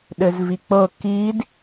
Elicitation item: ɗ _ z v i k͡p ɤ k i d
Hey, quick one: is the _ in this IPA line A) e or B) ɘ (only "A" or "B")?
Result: B